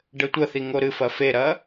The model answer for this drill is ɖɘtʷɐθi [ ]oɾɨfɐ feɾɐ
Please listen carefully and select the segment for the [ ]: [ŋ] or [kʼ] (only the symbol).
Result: ŋ